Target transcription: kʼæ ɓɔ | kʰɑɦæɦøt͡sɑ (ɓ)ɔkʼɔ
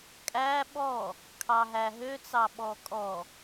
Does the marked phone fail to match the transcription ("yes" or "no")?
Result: no